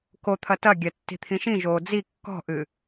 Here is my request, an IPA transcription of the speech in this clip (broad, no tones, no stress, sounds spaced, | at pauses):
k o t̪ʰ ɐ t ɐ ɡʲ ɛ tː i̤ t̪ʰ ĩ ʃ ĩ ʒ oː d͡z i kː ɔ̤ ʔ ɨ